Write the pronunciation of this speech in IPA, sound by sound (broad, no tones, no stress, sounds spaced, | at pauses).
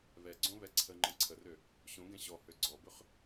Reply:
β ɛ ɡ͡ǀ õ β ɛ ǀʰ ə ŋ͡ǃ ə̃ ǀʰ ə r ø | ɕ õ ɡ ɛ̃ ɕ ɔ h ø ɡ͡ǀ ɔ b ø χ